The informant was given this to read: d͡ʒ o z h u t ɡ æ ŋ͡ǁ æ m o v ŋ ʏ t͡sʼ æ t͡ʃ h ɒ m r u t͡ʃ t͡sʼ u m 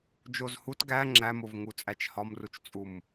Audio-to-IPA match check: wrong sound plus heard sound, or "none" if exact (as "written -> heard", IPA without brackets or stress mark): ʏ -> u